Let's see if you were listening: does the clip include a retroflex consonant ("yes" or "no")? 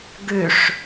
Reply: yes